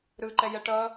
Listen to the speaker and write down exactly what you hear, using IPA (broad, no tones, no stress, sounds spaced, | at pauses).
ɾ ɯ ǃ ɛ j ɛ ʈ ʌ